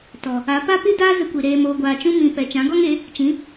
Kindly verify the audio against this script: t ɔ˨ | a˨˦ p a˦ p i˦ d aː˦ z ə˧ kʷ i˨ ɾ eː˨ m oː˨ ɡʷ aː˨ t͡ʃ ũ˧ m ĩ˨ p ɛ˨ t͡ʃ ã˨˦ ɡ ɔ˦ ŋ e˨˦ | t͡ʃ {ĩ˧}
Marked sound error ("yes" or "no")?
yes